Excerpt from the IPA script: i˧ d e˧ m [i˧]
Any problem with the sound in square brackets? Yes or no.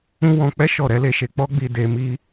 yes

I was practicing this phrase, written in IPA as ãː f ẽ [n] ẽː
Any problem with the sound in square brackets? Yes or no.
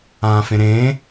yes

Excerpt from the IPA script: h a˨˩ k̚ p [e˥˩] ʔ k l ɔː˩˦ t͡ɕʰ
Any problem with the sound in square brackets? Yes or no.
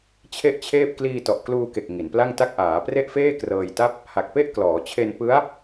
no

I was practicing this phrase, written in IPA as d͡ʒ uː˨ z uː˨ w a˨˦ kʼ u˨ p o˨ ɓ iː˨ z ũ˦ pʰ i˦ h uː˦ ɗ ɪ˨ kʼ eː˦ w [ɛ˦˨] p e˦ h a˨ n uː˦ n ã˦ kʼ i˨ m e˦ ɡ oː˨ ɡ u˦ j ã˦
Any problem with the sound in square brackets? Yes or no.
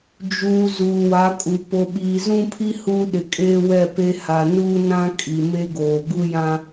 no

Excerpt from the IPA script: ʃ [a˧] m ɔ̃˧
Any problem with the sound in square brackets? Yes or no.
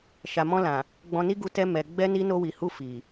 yes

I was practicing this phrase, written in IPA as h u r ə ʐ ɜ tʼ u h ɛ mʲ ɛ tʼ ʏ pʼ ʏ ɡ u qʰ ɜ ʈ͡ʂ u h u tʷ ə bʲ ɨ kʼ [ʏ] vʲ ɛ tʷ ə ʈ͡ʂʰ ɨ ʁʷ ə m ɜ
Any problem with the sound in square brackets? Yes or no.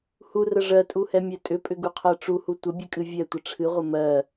yes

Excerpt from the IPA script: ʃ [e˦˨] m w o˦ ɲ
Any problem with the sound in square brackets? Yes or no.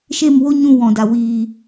no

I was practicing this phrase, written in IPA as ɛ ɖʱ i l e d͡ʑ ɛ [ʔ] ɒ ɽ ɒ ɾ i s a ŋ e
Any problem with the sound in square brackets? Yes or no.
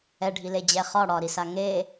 yes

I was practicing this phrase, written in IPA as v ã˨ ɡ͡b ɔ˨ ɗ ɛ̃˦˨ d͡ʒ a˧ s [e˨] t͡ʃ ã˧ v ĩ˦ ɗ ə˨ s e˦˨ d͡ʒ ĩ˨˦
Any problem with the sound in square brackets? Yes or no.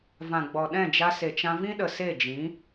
no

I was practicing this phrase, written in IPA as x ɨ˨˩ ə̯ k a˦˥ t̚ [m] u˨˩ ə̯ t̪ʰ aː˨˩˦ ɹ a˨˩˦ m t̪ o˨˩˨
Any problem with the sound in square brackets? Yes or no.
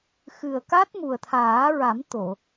no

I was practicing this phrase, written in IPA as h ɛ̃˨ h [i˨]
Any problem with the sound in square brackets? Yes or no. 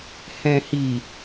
no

